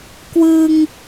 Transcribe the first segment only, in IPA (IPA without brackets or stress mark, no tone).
k